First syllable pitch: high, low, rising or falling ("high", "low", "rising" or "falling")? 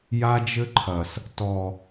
high